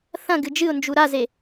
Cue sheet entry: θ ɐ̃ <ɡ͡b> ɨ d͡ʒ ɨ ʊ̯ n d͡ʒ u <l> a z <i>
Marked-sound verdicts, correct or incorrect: incorrect: ɡ, incorrect: ɾ, incorrect: e

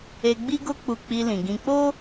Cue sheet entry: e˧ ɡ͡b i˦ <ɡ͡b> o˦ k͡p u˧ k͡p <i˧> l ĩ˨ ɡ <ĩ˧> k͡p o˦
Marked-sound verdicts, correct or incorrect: incorrect: ɡ, correct, correct

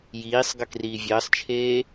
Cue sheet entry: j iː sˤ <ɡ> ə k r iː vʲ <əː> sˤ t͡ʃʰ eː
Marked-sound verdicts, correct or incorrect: correct, correct

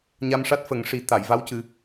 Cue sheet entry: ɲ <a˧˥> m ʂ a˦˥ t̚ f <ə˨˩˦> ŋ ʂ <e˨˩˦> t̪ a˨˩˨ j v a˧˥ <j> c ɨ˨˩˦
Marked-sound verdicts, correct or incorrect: incorrect: a˧, correct, incorrect: i˨˩˦, incorrect: w

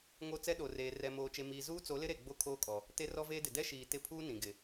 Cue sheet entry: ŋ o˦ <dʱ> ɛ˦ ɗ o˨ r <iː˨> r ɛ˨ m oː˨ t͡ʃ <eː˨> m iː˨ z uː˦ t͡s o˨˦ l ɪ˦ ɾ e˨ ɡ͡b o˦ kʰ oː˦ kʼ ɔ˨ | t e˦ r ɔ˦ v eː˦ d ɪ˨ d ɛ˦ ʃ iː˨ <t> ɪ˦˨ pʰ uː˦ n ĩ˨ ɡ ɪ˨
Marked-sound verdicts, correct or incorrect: incorrect: t͡s, incorrect: eː˨, incorrect: e˨, correct

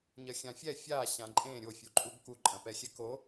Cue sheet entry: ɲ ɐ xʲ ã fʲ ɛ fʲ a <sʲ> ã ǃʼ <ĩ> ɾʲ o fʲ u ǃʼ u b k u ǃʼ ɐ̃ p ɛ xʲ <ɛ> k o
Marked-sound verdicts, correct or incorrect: incorrect: ɕ, incorrect: ẽ, correct

